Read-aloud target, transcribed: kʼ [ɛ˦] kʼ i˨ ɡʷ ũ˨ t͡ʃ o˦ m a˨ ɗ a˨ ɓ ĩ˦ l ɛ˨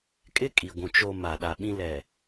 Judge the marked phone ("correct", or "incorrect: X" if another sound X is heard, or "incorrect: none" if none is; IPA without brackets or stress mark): incorrect: ɪ˦